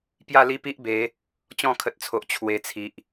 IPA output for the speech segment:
p j a˥˧ l i˦ p i˦ ʔ b e˨˦ | t͡ɕ ɔ̃˥˧ kʰ ə˨ t̚ t͡sʰ o˨ ʔ t͡ɕʰ w e˨˩ t͡sʰ i˨ ʔ

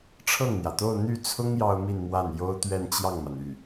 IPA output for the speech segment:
ʈ͡ʂʰ ɤ˥˩ ŋ n̪ j ä˩ t̪ o˥˧ ʊ̯ n̪ y˥˩ t͡sʰ ʊ˥ ŋ j ɑ˥ ʊ̯ m i˥˧ n m w a˥˩ n j o˥ ʊ̯ t̪ ɥ ɛ˥˧ n t͡ɕ j ɑ˥˩ ŋ m a˩ n y˥˩

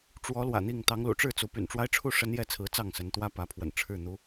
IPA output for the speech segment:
ʈ͡ʂ w ɔ˨˦ l w ä̰˨˩ n̪ i˥˨ ŋ t̪ ɑ˨˦ ŋ l ṵ˨˩ ʈ͡ʂ ɻ̩˥˨ t͡s u˨˦ p y̰˨˩ n ʈ͡ʂ w a˦ ɪ̯ ʈ͡ʂʰ u˥˨ ʂ ə˦ n j ɛ˥˨ t͡sʰ ɹ̩˨˦ t͡s ɑ˥˨ ŋ s ə˨˦ n t̪ w ä˦ p ä˨˦ pʰ w ə̰˨˩ n ʈ͡ʂʰ ɻ̩˥˨ n̪ u˦

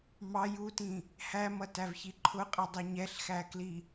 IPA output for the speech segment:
m ɑ j u t ĩ | h æ m ʌ t æ v ç i ǃʰ ʊ qʼ ʌ dˤ i ɲ ɛ ɬ x æ k l i

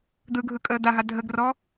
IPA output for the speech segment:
d̪ ɯ ɡʱ ɯ kʼ əː d̪ a ɦ a dʱ ə ɡ r ɔ

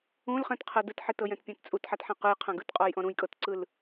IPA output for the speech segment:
ũ l χ ɛ̃ t qʰ ɤ d ɯ t ħ e t ɤ j ɛ̃ t pʲ ã t t͡sʼ u t ħ a t ħ ã q ɯ j qʰ ã ɡ ɯ t qʼ ɔ j ʔ ɔ̃ ɾ ũ j kʼ ɤ t ǀ ɯ l

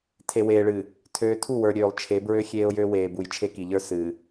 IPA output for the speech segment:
tʰ e˨ w eː˨ ɭ ɨː˨ | tʰ øː˨ tʰ u˦˨ w ə˞˨ ɾʲ øː˨ lˠ t͡ʃʰ e˨˦ b ɹ ø˦ xʲ eː˦ ʊ̯ j ø˦ w eː˨ b u˨ j t͡ʃʰ e˦ k i˨ ʎ ə˞˦ s ɨː˨

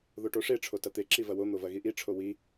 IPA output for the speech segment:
ð o ʈ o ʂ e ʈ͡ʂʰ o t ɐ t̪ e ǁ i v ɐ w o n̪ o v ɐ ɣ i ʔ i ʈ͡ʂʰ o w i

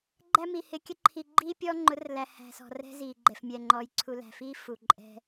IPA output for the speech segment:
ɡ͡ǃ æ˦ m i˨ h ɪ˨ kʲ ə˦ ǃʰ i˨ ɡ͡ǃ iː˦ pʲ ɔː˦ ŋ͡ǃ ʊ˨˦ r l æ˨ h æ̤˨ s ɔ̤˨ r ɛ̤˦ z iː˨ ɡ͡ǃ ɛ˨ f mʲ ɛ˨ ŋ͡ǃ ɔː˨ j ǀʰ u˨ l æ̤˨ f iː˦ f u˨ ǃʼ ɛ̤˦

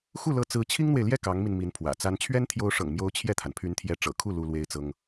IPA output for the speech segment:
x u˥˩ l ɤ˧˥ t͡s ɹ̩˧˥ t͡ɕʰ i˥ ŋ n̪ w e˨ ɪ̯ l j ɛ˥˩ k ɑ˧˥ ŋ m i˧ n m i˧˥ n pʰ w ä̰˨˩ t͡s a˥ n t͡ɕʰ ɥ ɛ˥ n t̪ʰ j o˧˥ ʊ̯ ʂ ɤ̰˨˩ ŋ m j o˧˥ ʊ̯ t͡ɕʰ j ɛ˥˩ t̪ʰ a˩ n pʰ y˧˥ n t̪ʰ j ɛ˧˥ ʈ͡ʂ ɤ̰˨˩ kʰ u˥˩ l u˥ l w e˥ ɪ̯ t͡s ɤ˥ ŋ

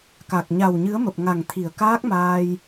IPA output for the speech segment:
k a˨˩ k̚ ɲ a˨˩ w ɲ ɨ˨˦ ə̯ m ə˨˩ p̚ ŋ a˨˩ ŋ t̪ʰ i˨˩ ə̯ k aː˦˥ k̚ m aː˧ j

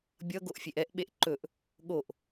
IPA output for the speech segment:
bʲ ʌ ɡ o ʔ fʲ e ʔ ɛ ʔ ɓ e ʔ ǃ ɵ ʔ | ɠ o ʔ

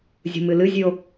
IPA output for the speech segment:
zʲ ṳ m ɨ l ɨ zʲ ʉ o̯

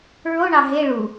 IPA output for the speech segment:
ɹ o ɳ ɑ ɦ e ɭ u

